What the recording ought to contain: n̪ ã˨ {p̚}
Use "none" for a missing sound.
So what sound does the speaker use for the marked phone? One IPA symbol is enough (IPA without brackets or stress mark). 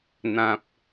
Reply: p̚